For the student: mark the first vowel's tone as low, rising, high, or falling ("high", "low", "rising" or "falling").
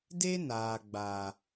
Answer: high